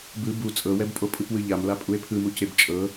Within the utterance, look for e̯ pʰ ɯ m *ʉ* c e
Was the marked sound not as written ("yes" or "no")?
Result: yes